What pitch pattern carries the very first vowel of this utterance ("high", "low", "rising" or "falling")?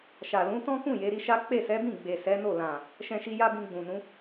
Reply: low